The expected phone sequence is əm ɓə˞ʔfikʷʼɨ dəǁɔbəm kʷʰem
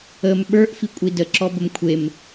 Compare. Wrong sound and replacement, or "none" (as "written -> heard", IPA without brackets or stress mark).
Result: ɨ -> i